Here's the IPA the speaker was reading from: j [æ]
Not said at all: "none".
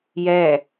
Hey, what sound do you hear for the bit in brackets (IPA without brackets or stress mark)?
ɛ